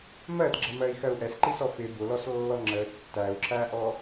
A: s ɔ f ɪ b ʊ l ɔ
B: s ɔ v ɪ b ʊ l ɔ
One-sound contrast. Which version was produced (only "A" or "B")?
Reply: A